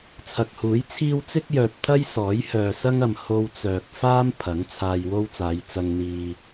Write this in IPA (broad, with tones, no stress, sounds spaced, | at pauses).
t͡sʰ ɐ˨ k̚ h uː˨˥ j t͡sʰ iː˥ w t͡s ɪ˥ k̚ j œː˨ p̚ t̪ʰ ɐ˥ j s ɔː˨˥ j h œː˨ s ɐ˥ ŋ ɐ˨ m h o˧ w t͡s œː˨ k̚ f aː˥ m pʰ ɐ˨˥ ŋ t͡sʰ aː˧ j w o˥ w t͡s aː˨˧ j t͡s ɐ˧ ŋ n̪ iː˨